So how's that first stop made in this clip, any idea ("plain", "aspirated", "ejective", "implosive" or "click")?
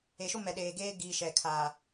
implosive